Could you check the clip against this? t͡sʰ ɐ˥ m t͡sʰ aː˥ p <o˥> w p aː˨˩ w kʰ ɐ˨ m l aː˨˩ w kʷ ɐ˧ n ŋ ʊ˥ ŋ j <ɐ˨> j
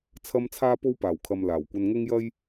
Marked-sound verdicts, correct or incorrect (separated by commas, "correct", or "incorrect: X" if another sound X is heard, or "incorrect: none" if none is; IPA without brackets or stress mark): correct, incorrect: ɐ˥